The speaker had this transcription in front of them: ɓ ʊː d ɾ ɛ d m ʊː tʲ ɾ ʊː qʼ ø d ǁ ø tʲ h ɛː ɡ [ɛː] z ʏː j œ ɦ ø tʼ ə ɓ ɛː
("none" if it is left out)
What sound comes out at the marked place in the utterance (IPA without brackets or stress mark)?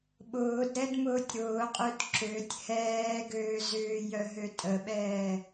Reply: øː